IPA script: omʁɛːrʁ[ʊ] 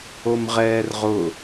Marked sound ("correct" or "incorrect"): correct